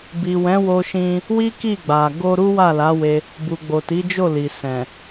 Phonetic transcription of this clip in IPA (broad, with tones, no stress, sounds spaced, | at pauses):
b i˨ w ɛ̃˨˦ w o˧ ʃ ĩ˧ | w i˦ k i˦˨ ɡ͡b a˨ ɡ o˧ ɾ u˦ w a˦˨ l a˨˦ w e˧ | b u˨ ɡ͡b o˨ t i˨˦ d͡ʒ o˦˨ l i˨ s ɛ̃˨